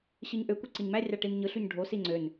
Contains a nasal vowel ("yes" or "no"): no